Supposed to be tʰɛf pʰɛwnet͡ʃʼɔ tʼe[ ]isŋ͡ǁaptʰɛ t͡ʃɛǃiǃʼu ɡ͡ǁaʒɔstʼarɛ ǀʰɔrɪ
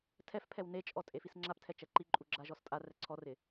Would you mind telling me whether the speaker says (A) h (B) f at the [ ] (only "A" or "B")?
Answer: B